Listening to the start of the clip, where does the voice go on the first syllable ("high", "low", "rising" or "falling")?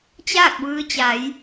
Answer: falling